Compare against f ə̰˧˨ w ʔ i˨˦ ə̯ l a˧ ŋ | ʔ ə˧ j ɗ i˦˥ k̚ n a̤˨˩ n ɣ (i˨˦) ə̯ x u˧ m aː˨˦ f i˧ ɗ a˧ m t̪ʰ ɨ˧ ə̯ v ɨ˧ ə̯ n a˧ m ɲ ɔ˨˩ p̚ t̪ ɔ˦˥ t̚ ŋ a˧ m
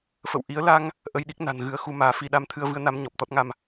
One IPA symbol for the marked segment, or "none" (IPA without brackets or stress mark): ɨ˨˦